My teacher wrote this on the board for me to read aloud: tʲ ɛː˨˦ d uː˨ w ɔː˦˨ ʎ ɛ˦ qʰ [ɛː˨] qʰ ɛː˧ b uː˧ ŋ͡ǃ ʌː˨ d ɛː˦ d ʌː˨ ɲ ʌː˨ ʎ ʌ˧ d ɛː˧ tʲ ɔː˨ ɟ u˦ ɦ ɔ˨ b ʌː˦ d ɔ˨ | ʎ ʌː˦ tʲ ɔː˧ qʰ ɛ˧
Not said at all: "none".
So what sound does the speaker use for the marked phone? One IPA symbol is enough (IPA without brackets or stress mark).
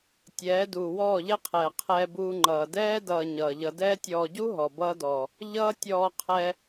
ɛː˨